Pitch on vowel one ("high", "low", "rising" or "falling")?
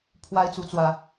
high